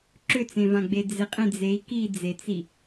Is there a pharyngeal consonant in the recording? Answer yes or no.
no